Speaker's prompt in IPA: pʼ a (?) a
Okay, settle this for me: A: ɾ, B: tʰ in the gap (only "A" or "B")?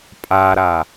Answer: A